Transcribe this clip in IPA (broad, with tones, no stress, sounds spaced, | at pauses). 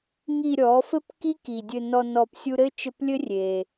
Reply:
ŋ i˨ ɾʲ ɔ˨˦ f ɘ˦ p k i˦ k i˨ dʲ ɘ˧ n ɔ˧ n ɔ˨ p sʲ u˧ ɾ ɘ˦ t͡ʃ ɘ˧ p lʲ ɘ˦ rʲ e˧